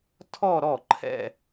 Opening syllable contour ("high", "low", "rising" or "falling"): falling